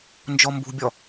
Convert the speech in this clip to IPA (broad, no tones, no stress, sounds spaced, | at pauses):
n d͡ʒ ɔ m b ṳ bʲ ɔ